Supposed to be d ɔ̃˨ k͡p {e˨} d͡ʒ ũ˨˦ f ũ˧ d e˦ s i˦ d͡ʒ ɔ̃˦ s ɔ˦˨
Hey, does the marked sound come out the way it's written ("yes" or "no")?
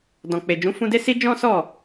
yes